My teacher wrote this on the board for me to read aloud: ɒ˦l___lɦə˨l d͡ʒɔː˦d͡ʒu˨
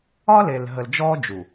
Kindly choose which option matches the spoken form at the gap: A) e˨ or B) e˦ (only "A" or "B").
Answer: A